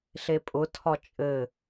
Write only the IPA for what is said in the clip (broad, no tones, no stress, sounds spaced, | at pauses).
ɬ e pʼ ʊ tʰ ɒ t͡ʃʼ ɘ